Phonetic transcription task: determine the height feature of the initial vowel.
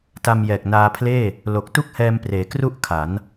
low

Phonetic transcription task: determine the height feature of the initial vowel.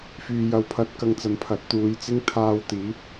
high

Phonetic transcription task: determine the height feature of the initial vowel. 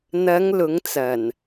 low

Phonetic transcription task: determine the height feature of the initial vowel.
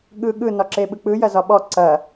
high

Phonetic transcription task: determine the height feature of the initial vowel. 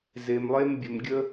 mid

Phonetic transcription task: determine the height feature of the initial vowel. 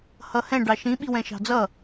mid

